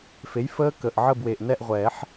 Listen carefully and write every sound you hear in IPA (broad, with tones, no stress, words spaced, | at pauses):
fe˩˥j fəː˦˥kə˨˩ʔ ʕə˦˨bwe˨˩ʔ nɛ˦˨ʔʁʷɛː˨˩˦ħ